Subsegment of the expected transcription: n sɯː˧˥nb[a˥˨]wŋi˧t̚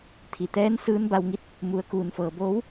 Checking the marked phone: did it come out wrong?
yes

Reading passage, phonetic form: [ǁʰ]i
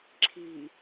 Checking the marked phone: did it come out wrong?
no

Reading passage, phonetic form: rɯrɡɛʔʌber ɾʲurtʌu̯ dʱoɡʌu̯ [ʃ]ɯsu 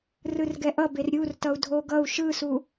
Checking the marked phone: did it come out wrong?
no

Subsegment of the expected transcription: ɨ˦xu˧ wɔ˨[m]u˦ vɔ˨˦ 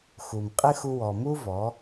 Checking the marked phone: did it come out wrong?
no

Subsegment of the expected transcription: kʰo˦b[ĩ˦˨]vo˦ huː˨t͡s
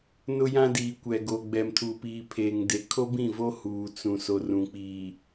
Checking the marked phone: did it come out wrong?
no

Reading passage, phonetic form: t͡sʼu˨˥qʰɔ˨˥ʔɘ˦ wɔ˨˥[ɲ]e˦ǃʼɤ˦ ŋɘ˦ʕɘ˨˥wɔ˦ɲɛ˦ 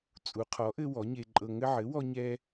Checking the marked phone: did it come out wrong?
no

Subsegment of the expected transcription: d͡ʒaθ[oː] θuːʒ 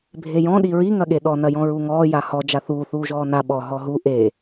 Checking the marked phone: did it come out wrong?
yes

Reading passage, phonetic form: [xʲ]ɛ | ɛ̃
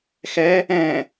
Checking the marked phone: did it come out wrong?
yes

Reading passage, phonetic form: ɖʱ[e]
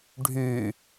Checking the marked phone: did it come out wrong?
yes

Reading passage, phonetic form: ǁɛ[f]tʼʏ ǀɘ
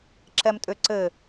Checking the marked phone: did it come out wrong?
yes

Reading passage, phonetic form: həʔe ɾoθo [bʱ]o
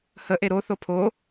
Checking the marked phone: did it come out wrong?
yes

